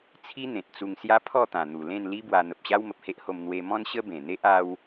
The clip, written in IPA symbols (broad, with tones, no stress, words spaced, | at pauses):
t͡sʰi˦n̪ẽ˨t̚ t͡su˧ŋsja˦ pʰɔ˥˧t̪ã˨˩n̪u˨˩ lẽ˥˧nli˦bwa˧ n̪ə˨p̚ɕa˦w mə˨p̚he˦ʔho˧m n̪we˧mɔ̃˦n ɕə˦bẽ˨˩n̪e˦ʔ a˧w